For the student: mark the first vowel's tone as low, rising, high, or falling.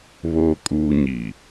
low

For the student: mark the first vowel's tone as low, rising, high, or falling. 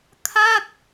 falling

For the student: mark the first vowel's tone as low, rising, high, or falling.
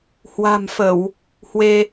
low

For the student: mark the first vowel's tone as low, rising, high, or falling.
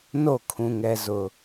falling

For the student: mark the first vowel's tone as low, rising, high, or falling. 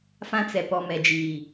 high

